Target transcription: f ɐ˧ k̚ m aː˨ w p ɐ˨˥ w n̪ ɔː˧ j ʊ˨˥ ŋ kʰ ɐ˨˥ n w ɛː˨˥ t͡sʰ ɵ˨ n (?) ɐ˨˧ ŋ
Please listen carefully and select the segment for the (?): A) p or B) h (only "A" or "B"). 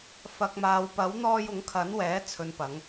A